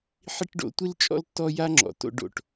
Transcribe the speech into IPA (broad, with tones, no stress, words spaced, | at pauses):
ħi˦ʈɖo̰˨˦tʷi˦lt͡ʃʼɔ̰˦l tːɔ˦ja˦ŋ͡ǁɔ̰˨ to̰˦ ɖo̰˨ʈ